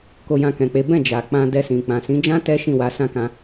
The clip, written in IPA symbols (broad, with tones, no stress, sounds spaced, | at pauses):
k o˧ j ã˧ k ɛ̃˨ k͡p e˨˦ b ɛ̃˦˨ d͡ʒ a˨ k͡p ã˧ d ɛ˧ s ĩ˨ k͡p ã˨ s ĩ˨˦ d͡ʒ ã˦ t ɛ˦ ʃ ĩ˦˨ w a˨˦ s ã˦ k ã˧